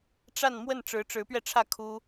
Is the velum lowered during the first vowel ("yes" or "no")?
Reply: no